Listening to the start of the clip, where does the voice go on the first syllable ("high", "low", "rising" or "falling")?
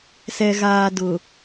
low